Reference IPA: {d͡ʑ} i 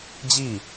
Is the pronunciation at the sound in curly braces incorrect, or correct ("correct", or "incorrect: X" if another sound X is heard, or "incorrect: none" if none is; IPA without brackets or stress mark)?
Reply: correct